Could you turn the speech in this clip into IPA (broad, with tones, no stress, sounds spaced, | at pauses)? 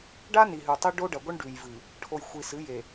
ɖ a˦ n i˨ ɦ ʉ˨ tˤ i˦ ɖ o˦ ɖ ɐ˨ ɡʷ ɨ˦ ɳ ɖ ʉ˨ j v ɨ˨ | ʈʰ o˨ j xʷ i˨ s ɨ˨˦ j e˨